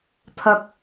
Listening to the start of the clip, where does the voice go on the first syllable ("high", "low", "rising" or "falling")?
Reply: high